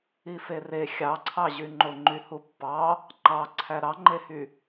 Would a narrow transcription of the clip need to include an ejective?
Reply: no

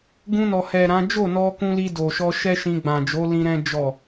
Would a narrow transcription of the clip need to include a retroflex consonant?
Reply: no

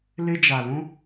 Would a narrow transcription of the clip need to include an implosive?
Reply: no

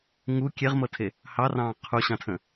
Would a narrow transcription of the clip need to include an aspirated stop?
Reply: yes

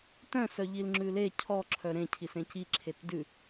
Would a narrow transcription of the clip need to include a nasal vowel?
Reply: yes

